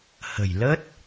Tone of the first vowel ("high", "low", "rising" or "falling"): low